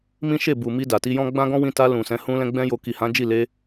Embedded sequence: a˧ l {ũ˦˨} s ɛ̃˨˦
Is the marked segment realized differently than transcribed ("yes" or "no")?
yes